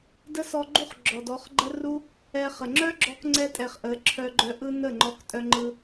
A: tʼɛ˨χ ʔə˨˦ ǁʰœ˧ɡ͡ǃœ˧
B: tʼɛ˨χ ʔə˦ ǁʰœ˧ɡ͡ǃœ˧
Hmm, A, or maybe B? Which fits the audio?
A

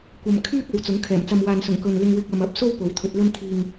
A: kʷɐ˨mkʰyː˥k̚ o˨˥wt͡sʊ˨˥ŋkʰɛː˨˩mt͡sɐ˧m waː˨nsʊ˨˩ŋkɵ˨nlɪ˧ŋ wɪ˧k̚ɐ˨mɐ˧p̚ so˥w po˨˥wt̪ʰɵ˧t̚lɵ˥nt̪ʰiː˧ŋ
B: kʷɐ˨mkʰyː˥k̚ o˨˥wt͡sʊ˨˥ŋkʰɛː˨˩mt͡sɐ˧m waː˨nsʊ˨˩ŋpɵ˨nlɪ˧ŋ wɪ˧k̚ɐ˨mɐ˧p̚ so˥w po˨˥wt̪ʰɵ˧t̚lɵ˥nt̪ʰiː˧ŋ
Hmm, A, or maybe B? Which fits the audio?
A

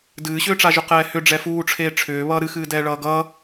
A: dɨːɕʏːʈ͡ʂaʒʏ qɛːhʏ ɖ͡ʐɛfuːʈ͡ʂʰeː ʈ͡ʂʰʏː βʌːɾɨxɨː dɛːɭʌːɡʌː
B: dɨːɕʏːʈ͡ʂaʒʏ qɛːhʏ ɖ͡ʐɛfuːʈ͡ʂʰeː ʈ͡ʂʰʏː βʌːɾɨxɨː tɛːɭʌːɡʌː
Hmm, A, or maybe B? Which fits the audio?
A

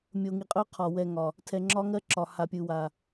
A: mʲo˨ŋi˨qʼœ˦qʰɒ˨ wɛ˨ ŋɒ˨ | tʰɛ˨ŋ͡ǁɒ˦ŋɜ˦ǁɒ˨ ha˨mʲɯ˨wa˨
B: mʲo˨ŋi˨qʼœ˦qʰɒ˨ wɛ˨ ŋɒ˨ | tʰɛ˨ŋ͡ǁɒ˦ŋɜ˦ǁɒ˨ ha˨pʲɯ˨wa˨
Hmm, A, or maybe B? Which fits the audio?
B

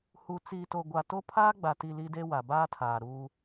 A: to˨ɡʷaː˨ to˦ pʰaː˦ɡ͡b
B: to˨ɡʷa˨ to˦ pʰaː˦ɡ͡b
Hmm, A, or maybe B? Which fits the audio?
B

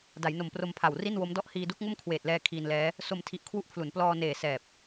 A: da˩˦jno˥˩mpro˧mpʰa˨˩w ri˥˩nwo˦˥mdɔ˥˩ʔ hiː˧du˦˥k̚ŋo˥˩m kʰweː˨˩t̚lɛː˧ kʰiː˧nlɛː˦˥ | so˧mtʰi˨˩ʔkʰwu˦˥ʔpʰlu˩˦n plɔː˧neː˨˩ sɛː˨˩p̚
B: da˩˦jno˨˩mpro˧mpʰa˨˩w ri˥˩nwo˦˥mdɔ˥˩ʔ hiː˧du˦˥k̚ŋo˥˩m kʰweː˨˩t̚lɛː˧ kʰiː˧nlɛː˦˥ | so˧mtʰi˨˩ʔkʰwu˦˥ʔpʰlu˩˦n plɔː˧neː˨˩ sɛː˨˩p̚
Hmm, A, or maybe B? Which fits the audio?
B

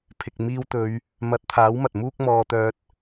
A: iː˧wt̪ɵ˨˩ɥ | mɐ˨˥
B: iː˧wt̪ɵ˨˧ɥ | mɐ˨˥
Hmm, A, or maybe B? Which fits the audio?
B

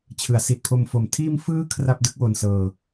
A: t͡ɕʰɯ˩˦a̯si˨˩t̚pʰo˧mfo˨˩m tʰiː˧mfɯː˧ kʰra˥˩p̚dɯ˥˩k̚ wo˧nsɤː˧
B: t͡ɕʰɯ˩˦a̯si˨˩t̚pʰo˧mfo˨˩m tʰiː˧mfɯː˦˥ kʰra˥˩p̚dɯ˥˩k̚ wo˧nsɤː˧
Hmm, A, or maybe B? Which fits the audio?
B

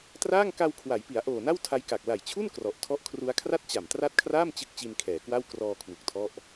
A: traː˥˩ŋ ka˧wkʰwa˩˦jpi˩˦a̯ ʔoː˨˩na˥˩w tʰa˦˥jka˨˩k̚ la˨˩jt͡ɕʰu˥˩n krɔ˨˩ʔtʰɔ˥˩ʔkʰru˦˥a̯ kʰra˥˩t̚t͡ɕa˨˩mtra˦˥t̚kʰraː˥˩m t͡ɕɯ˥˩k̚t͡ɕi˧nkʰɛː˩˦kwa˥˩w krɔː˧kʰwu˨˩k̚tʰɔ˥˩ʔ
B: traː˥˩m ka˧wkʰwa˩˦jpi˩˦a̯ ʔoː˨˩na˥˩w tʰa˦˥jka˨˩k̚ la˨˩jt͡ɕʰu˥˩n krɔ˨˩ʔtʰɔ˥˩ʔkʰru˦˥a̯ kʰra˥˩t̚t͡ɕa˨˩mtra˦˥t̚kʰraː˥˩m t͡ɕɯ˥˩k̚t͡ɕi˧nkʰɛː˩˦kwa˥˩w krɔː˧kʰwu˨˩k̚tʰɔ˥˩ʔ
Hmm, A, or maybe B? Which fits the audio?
A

